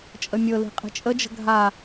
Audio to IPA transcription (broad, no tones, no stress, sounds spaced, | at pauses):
t͡ʃʼ ə mʲ ɤ l i̤ qʼ i̤ t͡ʃʼ ə d͡ʒ ə̤ ɡʱ a